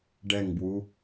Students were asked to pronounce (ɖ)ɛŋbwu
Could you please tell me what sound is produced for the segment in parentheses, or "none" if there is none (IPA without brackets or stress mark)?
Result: ɖ